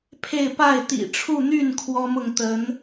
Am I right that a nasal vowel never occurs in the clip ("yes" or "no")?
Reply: yes